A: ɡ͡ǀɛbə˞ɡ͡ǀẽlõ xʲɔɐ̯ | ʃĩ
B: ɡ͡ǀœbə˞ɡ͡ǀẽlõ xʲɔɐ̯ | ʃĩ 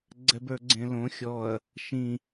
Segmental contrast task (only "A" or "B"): A